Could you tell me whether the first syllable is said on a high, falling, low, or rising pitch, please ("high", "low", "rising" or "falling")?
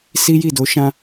high